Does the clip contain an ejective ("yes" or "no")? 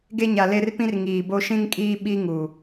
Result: yes